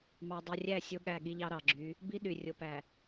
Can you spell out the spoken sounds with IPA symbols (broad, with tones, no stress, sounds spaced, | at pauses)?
m ɑ˨ dˤ ɯ˨ rʲ æ˦˨ sʲ o˦ ɠ æ˦˨ ɠ i˦ ʎ ɑ˦ ɾ ɑ˨ ɡ͡ǁ y˨˦ | b i˦ ɗ y˨ rʲ o˨ p æ˨